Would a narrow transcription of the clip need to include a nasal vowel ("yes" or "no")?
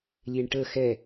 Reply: no